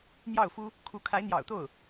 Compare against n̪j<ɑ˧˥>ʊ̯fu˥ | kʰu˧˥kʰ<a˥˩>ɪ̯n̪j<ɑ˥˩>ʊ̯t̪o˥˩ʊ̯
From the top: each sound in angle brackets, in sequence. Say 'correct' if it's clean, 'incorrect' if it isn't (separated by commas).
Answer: incorrect, incorrect, incorrect